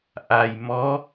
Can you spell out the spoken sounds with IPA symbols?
ʔ a˨˩ j m ɔ˧˥

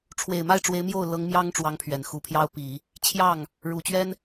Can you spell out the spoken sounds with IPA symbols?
ʈ͡ʂʰ w e˨˩ ɪ̯ m a˥˩ ɪ̯ ʈ͡ʂ w e˧˥ ɪ̯ m j o˥˩ ʊ̯ l ɤ˧˥ ŋ m j ɑ˥ ŋ ʈ͡ʂ w ɑ˧˥ ŋ pʰ ɥ ɛ˨˩ n x u˧˥ pʰ j ɑ˥ ʊ̯ p i˨˩˦ | t͡ɕʰ j ɑ˥˩ ŋ | ɻ u˨˩ t͡ɕ ɥ ɛ˥ n

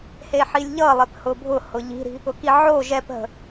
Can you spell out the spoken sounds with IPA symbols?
h e ħ i lʲ ʎ ʌ lˠ e p h ʊ bʱ ʊ h ʊ ʎ i̤ ɾ i̤ | ʊ k i ʕ o ʒ ɛ p ɦ ə̤

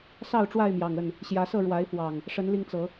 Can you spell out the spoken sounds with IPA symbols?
s ɑ˥˨ ʊ̯ ʈ͡ʂ w a˥˨ ɪ̯ m j ɑ˨˩ ŋ ə˥˨ n | ɕ j ä˨˦ s ɤ˥˨ ɻ w a˨˦ ɪ̯ f w ɑ˨˩ ŋ | ʂ ə˨˦ n l i˧ ŋ t͡s ɤ˨˦

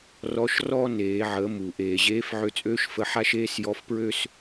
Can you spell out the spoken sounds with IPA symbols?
r ɔ˧˥ ʃ r ɔ˥ n eː˩˧ ʕ ə˩˧ m u˩ ʔ eː˩ ʑ eː˧˥ f ʕ ø˧ t͡sʼ øː˥ ʃ f ə˧ ħ a˥ ʃ eː˥ s j ɔ˧˥ f p ɹ ø˥ s

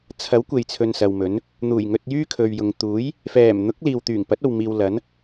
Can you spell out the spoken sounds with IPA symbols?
t͡sʰ ɐ˨˥ w kʷ e˨ j t͡sʰ ɵ˨ n s ɐ˨ w m ɵ˨˥ n | n̪ uː˨˩ j ŋ ɵ˧ t̚ j yː˥ kʰ ɵ˨ ɥ j ʊ˨ ŋ t̪ uː˨˥ j | f ɛː˨˩ m n̪ ʊ˨˥ k̚ l iː˨ w t̪ yː˨˩ ŋ p ɐ˨˥ t̚ o˨ w m iː˧ w l ɐ˨˥ n

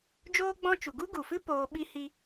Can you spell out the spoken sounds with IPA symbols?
d͡ʒ oː˦ ɡ͡b ɔ̃˦ t͡ʃ u˨ ɡ u˦ ɡ u˨ f ɨ˦ p oː˧ ɓ i˦ h i˦

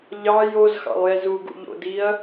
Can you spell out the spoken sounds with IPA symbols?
ʎ ɑ j o z x ɑ̰ lˠ j ɛ z u ɡ ṵ ʎ o̰ d i ɐ̯

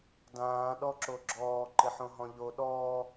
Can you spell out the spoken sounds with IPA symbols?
d ãː ɗ ɔ ǁ o ɡ͡ǁ ɔː ǃ ɪ ħ õ ɦ ɔ̃ ʎ o ɗ ɔː

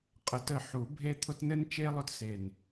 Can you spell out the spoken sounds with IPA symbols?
qʼ ə˨˩˦ t ə˧˩ ħ u˨˩˦ bʱ e˥ t̪ʰ ʊ˥ t n ɘ˥ n t͡ʃ e˥ lˠ ʊ˥ t s e˧˩ n

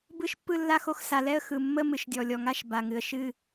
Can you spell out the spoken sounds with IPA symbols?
b ɯ˥˧ ʃ pː ɯ˥˧ lː a˥˧ x o˥˧ x s a˨˩ l ɛ˥˧ ə̯ x ɯ˨˩ mː ə˥˧ m ɨ˨˩ ʃ dʲ ɔ˨˩ lʲ ɔ˨˩ ŋ a˥˧ ʃ b a˨˩ ŋ ɨ˨˩ ə̯ ʃ ɨ˥˧

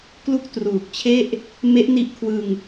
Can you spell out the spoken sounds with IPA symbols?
k l u˥˩ k̚ t r uː˨˩ k̚ t͡ɕʰ e˥˩ ʔ | m e˦˥ ʔ n i˦˥ ʔ kʰ w ɯ˧ ŋ

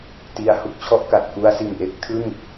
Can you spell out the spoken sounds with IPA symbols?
t i˧ a̯ h u˦˥ k̚ t͡ɕʰ ɔ˥˩ ʔ k a˨˩ t̚ k u˧ a̯ s i˨˩ n ʔ e˦˥ k̚ tʰ ɯ˥˩ ŋ

